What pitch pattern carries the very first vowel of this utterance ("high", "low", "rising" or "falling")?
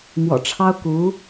low